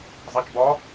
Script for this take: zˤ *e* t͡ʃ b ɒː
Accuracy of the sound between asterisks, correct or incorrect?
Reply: correct